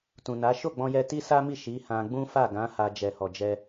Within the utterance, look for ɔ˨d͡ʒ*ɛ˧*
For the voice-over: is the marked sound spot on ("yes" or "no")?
yes